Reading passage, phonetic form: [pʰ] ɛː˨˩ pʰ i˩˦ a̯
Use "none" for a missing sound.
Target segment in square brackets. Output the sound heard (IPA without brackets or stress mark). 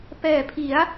p